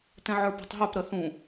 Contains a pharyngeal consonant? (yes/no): yes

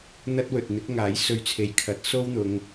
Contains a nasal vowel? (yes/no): no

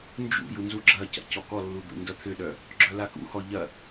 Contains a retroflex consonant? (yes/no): no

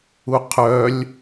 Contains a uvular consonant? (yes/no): yes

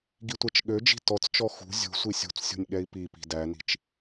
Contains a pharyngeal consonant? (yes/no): no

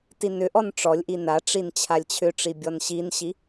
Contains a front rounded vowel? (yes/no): yes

